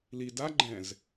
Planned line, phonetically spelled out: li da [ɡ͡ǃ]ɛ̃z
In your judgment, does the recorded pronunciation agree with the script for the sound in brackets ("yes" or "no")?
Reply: yes